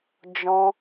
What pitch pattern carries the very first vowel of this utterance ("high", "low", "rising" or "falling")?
high